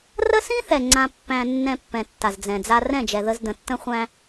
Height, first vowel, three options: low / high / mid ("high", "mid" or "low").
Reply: mid